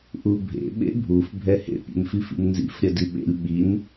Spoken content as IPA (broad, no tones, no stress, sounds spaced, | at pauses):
ʔ u bʱ ḛ ɓ ḛ bʱ u f bʱ ɛ h ḛ pʲ ḛ m f i f ḭ m n z ḭ f ɾʲ ɐ d i ɓ ḛ lʲ ɓ i n